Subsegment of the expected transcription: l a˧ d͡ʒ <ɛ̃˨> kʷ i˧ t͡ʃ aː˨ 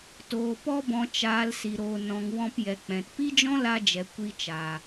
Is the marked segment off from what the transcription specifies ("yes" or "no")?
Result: yes